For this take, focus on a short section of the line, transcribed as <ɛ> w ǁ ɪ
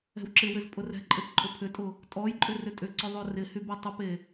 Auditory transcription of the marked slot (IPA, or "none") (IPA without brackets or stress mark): ɛ̤